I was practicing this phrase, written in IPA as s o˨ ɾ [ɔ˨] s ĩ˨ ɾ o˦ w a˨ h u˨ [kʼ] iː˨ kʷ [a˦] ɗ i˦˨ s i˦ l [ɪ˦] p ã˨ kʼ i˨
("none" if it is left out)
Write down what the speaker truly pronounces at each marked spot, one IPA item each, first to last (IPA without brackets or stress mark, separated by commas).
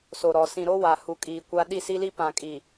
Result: ɔ˨, kʼ, a˦, i˦